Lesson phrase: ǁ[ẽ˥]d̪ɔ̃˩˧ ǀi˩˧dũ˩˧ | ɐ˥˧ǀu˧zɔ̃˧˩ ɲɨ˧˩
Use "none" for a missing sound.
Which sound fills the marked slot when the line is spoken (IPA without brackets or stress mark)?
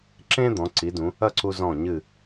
ẽ˥